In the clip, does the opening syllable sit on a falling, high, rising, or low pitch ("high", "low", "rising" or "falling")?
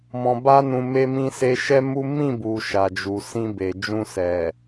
low